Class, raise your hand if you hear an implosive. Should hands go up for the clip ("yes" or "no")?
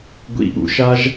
yes